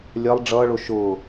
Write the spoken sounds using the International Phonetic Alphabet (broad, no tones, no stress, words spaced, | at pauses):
lʲɜlˠ ɖ͡ʐʌːɭʊ ʃʊː